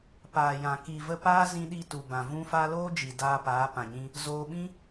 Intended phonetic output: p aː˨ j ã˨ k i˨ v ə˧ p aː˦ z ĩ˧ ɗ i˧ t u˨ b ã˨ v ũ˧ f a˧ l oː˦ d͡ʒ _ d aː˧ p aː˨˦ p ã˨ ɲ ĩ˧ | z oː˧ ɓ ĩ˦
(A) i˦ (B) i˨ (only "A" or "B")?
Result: B